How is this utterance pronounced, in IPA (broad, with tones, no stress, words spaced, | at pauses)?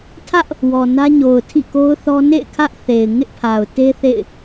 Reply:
tʰä˦ʔ | wɔ˨nä˦ɲo˨ʊ̯ tʰḭ˦˨ko˦ʊ̯θɔ˦ nḛ˦˨ɪ̯ kʰä˦ʔθe˨ɪ̯ ŋɪ˦ʔpʰa˨ʊ̯te˦ θḛ˦˨ɪ̯